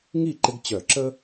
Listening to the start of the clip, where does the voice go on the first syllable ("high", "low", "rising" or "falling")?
falling